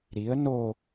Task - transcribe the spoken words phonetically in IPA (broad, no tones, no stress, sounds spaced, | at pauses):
ɾ i ə̯ n o